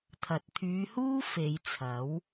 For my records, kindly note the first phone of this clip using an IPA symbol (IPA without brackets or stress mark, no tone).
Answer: t̪ʰ